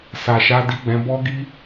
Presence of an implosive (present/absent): absent